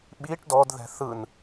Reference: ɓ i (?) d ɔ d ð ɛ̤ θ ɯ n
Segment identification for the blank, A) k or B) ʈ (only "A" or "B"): B